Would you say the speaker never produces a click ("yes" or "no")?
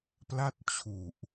yes